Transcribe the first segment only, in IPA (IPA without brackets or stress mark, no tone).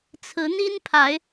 t͡sʰ